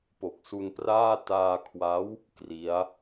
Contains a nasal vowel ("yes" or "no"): no